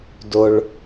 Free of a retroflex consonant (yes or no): no